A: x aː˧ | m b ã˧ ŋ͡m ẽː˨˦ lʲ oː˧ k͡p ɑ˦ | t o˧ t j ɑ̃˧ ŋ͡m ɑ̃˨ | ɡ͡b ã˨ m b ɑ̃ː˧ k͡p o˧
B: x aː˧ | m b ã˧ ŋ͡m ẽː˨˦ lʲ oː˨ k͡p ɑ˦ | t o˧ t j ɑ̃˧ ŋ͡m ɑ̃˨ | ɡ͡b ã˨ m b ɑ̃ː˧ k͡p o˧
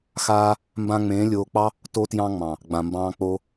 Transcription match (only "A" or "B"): A